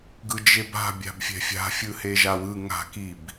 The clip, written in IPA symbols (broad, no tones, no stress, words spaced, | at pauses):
ɡɯd͡ʒeba̤ bʲa̤bfʲɛ̤fʲa̤fʲɯ heʒawɯ ŋa̤ kib